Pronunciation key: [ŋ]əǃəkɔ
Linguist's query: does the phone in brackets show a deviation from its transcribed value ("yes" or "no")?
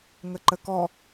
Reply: no